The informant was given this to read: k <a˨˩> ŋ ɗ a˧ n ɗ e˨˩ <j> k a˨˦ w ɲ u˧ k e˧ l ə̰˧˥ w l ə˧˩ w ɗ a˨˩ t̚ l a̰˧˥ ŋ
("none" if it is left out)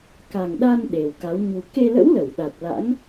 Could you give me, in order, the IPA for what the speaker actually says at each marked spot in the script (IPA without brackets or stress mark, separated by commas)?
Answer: a˨˩, w